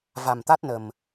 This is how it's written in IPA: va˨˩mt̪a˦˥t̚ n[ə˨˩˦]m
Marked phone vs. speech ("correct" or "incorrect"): incorrect